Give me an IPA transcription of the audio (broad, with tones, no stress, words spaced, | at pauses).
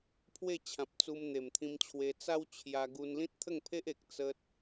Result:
pʰwe˥˧t͡ɕʰã˨p̚t͡su˧m n̪e˨˩mt̪ʰĩ˧mt͡ɕʰwe˧ t͡sa˦wt͡ɕʰja˧ ɡu˧nlĩ˦t̚t̪ʰə˥˧ŋpʰe˦ʔ e˨k̚ t͡sə˦t̚